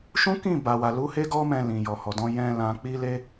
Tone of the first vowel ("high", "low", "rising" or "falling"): high